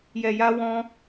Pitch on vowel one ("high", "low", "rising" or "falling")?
low